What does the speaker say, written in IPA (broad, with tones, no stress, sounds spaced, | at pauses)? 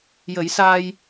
j ə˨˩˦ j s aː˧ j